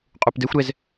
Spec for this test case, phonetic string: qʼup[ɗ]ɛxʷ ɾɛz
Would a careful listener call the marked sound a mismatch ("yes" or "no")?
yes